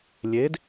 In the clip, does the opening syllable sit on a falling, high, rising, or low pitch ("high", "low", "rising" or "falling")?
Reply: rising